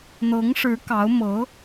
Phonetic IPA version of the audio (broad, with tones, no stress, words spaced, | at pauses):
n̪ɤ˧˥ŋʂɻ̩˧˥ kɑ˧˥ʊ̯mɤ˧˥